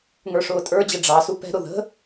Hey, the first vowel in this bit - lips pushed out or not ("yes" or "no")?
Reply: no